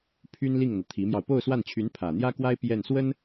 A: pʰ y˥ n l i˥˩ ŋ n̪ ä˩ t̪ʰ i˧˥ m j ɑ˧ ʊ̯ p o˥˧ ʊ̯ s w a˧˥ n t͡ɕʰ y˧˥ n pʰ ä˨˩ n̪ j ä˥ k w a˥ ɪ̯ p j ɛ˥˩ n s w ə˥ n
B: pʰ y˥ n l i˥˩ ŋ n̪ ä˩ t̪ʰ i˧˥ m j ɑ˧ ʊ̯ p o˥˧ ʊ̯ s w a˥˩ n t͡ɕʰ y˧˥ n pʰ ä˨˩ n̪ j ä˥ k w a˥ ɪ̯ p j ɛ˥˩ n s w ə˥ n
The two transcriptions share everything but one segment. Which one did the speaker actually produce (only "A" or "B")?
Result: B